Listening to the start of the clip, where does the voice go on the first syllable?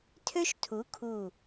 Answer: high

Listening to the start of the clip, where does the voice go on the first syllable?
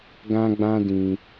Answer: high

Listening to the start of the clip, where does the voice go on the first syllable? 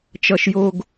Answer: high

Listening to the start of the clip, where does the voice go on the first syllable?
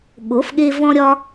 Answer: rising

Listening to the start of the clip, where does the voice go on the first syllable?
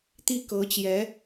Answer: falling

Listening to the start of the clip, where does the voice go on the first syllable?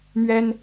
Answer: high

